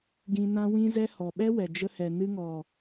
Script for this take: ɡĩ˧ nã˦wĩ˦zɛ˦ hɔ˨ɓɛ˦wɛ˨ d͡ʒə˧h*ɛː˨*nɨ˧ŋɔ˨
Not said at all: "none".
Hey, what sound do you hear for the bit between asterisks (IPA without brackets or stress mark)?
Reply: ɛ˨